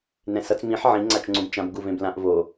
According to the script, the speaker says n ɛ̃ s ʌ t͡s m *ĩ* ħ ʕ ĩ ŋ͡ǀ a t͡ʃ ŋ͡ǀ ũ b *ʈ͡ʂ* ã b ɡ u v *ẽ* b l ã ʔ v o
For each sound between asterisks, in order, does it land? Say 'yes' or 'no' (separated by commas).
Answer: yes, no, yes